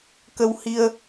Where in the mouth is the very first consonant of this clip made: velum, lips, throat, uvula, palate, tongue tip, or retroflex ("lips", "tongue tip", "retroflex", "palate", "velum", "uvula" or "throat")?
velum